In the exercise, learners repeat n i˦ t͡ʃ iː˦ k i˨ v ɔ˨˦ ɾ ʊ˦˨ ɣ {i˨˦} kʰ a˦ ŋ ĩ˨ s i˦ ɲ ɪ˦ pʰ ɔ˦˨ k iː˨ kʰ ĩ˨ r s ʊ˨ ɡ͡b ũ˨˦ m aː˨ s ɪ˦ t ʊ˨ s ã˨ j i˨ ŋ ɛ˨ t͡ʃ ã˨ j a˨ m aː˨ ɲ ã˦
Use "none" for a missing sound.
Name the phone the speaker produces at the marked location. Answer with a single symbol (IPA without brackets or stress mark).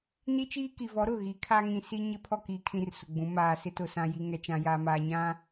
i˨˦